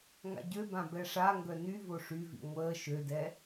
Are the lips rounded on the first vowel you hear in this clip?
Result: no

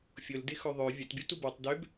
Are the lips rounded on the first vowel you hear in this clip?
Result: yes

